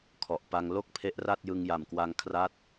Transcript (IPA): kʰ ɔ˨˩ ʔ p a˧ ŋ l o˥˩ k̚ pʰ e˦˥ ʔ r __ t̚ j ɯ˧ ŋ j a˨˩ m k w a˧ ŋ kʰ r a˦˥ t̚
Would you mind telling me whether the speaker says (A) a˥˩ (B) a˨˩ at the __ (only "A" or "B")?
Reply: A